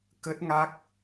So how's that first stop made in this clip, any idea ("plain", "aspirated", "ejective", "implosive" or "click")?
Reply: plain